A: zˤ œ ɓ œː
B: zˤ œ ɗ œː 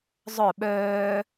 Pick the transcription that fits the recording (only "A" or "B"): A